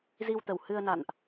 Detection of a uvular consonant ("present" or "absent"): absent